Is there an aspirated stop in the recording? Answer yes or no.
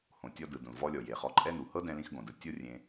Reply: no